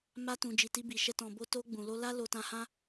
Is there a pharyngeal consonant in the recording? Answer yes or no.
no